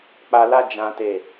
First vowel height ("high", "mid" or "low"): low